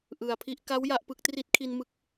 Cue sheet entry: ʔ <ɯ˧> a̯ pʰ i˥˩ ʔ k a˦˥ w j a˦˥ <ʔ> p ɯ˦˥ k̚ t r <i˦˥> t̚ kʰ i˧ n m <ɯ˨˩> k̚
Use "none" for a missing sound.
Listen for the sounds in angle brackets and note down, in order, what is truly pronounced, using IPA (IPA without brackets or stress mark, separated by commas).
ɯ˨˩, ʔ, i˦˥, ɯ˦˥